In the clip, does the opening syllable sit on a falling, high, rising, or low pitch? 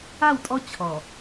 falling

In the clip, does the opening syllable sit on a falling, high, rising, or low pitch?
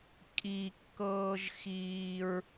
high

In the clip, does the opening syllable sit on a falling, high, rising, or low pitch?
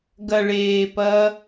low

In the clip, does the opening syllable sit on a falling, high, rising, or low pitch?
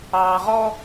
low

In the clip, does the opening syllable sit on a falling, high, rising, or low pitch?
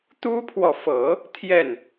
high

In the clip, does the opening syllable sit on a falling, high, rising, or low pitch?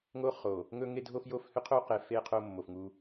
high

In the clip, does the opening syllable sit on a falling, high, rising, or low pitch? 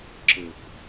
low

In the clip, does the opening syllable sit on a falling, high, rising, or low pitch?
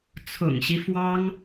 low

